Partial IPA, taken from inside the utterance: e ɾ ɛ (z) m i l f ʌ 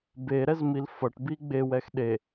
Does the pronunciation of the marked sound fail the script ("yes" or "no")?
no